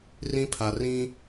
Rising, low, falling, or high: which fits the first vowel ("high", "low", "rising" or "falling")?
high